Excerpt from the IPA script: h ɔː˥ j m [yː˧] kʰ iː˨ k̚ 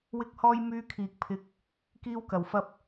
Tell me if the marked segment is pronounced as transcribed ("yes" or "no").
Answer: yes